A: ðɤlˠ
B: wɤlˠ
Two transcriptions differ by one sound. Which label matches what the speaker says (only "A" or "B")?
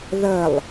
A